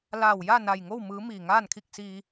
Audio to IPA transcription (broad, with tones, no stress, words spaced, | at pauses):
laː˧˩wja˥˨ na˧˩jŋo˥˨w mɯː˧˥ miː˧˩ŋaː˥˨nkʰi˥˨k̚siː˧